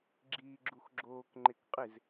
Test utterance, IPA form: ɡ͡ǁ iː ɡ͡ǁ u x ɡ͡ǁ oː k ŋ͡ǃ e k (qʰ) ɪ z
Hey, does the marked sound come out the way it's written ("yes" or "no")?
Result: no